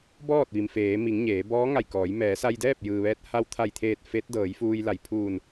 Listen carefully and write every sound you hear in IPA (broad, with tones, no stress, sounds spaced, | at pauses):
b ɔː˥˨ t̚ ʋ i˩ m f eː˩˧ m i˩˧ ŋ ɲ eː˩˧ b ɔː˧˥ ŋ a˧˩ j k ɔː˩˧ j m ɛː˩˧ s a˧ j d ɛː˥˨ p̚ j ɯː˩ ʋ ɛː˧ t̚ h a˧ w t̪ʰ a˧˩ j t̪ʰ eː˧˩ t̚ f e˧˥ t̚ d ɤː˩˧ j f uː˧ j l a˩ j pʰ uː˧˩ n